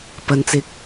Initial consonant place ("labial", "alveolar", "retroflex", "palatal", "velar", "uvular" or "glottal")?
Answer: labial